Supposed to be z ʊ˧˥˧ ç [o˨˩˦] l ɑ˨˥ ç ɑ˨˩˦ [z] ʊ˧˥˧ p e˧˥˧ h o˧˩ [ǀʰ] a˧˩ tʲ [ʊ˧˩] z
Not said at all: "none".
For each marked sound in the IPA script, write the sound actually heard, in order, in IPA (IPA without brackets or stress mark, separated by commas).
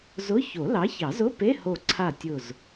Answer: o˨˩˦, z, ǀʰ, ʊ˧˩